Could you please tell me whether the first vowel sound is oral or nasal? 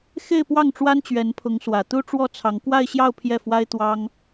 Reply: oral